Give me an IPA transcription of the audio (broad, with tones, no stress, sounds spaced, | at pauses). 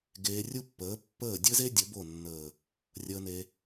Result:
ɡ eː˧ rʲ u˦ pː əː˨˦ pː əː˦˨ dʲ ɘ˦ z e˦ dʲ ə˨˦ b o˦˨ nː əː˨ | rʲ əː˧ n e˧